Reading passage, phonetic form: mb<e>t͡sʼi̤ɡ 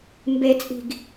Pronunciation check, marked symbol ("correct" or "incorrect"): correct